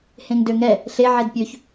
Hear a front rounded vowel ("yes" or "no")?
yes